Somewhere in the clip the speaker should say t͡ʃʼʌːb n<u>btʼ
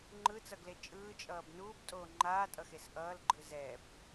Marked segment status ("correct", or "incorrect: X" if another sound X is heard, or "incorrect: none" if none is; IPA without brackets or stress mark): incorrect: uː